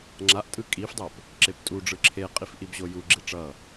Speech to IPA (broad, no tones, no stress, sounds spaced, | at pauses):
ŋ͡ǁ a ʔ tʼ ɯ kʼ i f dˤ o p | ǁ e p tʼ u ɖ͡ʐ ɯ ǁʰ e qʼ i f ʔ i b ʑ o j u ɡ͡ǁ i ʈ͡ʂ ʌ